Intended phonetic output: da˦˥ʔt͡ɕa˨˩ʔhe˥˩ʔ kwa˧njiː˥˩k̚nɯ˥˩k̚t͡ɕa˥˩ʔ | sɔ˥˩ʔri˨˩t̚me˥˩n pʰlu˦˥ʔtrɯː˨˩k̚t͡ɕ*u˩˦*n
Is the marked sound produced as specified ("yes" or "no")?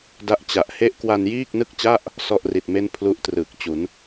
yes